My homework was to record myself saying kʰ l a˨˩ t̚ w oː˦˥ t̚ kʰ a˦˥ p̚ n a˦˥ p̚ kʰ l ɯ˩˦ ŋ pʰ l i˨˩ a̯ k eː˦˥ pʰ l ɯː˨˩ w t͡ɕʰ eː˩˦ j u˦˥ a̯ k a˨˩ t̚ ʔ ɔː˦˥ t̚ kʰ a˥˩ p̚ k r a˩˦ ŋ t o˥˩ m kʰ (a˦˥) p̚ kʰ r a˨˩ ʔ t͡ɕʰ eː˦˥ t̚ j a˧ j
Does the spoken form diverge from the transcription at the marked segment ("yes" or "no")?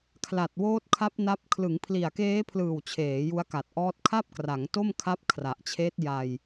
no